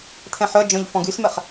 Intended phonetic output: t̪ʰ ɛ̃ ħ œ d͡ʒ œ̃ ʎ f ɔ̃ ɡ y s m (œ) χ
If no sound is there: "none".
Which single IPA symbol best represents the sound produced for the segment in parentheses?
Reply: ɛ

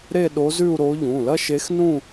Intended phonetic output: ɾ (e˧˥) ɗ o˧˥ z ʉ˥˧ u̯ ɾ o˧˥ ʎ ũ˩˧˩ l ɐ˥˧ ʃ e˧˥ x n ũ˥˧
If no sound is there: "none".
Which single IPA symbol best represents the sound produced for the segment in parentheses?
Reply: e˥˧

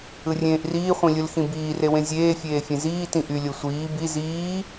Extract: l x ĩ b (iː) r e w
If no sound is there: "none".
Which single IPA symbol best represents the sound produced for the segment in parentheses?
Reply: iː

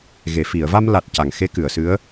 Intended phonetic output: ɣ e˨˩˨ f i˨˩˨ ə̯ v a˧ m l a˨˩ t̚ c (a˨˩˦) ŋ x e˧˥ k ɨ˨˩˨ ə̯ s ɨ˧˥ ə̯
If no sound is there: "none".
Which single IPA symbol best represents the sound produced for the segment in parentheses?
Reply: a˨˩˨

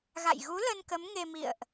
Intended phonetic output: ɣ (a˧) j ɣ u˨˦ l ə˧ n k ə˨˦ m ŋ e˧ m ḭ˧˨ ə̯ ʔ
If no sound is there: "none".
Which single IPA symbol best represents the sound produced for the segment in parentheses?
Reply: a̰˧˨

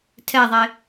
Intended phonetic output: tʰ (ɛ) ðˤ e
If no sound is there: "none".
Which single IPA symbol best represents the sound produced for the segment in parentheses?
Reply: ɛ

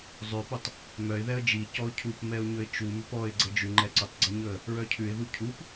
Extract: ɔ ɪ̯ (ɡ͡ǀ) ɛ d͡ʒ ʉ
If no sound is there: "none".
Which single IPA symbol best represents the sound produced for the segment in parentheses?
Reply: ɡ͡ǀ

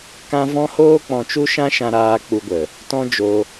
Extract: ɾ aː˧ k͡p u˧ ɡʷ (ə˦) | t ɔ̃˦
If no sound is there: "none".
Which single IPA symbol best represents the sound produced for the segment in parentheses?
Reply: ə˨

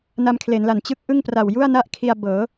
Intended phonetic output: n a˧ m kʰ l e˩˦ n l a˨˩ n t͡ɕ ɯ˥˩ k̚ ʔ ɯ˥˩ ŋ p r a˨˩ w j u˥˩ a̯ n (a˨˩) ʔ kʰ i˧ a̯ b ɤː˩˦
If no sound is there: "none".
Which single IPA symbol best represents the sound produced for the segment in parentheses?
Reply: a˥˩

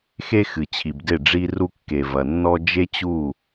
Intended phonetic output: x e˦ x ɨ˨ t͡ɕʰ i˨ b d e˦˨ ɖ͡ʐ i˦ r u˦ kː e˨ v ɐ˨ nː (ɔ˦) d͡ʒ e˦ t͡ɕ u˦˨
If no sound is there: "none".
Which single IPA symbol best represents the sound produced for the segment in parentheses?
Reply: ɔ˦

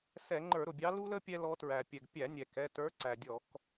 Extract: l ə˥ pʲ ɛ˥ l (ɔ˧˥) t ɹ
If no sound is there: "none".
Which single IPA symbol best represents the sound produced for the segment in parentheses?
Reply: ɔ˧˥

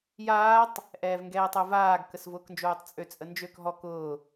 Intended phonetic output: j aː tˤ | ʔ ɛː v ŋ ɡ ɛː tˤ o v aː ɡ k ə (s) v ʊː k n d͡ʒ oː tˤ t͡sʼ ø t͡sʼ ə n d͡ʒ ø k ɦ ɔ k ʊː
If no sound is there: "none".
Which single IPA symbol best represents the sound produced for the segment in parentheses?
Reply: s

